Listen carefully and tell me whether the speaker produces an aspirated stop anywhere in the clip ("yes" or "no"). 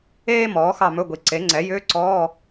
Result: no